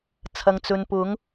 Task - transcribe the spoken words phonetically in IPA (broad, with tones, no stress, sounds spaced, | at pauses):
t͡sʰ ɐ˨ ŋ t͡s ɵ˨ n p ʊ˨˥ ŋ